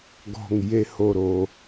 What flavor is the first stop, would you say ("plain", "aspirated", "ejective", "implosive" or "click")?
plain